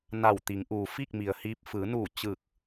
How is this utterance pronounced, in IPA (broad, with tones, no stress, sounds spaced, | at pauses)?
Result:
n a˧˩ w t̪ i˩˧ ŋ ʔ uː˩ f i˥˨ k̚ m i˩ ə̯ h iː˧ p̚ f ɯː˩˧ n uː˧˩ t͡ɕ ɯː˧˩ k̚